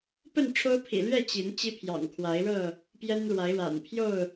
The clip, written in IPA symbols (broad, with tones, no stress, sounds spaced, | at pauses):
p ə˥˨ n ʈ͡ʂʰ o˦ ʊ̯ pʰ ḭ˨˩ l ɥ ɛ˥˨ t͡ɕ i˨˦ n t͡ɕ i˦ pʰ j ɑ̰˨˩ ŋ kʰ w a˨˦ ɪ̯ ɻ ɤ˥˨ | p j ɛ˦ n ɻ w a˨˦ ɪ̯ ɻ a̰˨˩ n pʰ j o˥˨ ʊ̯